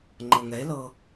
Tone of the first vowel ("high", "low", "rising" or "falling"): low